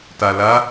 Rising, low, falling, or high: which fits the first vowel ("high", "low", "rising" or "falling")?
low